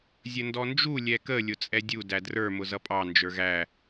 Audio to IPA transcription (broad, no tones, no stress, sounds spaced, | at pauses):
zʲ ə n d ɔ n d͡ʒ u lʲ ɛ k ə lʲ ʊ t͡sʼ ɛ dʲ u d æ d r ə˞ m ʊ z ʌ pʼ ɑ n d͡ʒ ə˞ ɣ æ